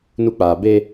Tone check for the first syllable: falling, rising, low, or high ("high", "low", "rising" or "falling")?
high